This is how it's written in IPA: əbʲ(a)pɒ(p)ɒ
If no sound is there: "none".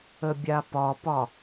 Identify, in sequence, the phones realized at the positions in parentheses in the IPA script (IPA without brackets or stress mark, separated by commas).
a, p